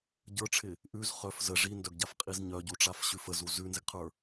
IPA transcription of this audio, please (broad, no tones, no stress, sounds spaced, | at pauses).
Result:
ɟ ə˞ ʈ͡ʂʰ ɪ | ʔ ʉ z χ œ f z ə ʐ i n d œ ɡ ɟ a f qʼ i z ɲ œ ɟ u ʈ͡ʂ a f ɕ ʉ f ə z u z ʉ n z ɪ ɡ qʰ ə˞